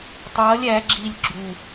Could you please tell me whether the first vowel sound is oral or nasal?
oral